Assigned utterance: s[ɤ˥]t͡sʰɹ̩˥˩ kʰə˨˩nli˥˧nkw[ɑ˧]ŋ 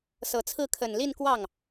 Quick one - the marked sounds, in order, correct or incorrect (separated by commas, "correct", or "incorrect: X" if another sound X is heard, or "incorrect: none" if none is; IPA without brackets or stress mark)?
incorrect: ɤ˨˩, incorrect: ɑ˥˩